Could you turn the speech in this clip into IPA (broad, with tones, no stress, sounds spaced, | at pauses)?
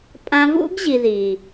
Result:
pʼ ã˧ v ṵ˦ ɡ ʑ i˨ ð i˨